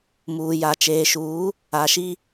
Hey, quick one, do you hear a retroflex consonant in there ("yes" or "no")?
no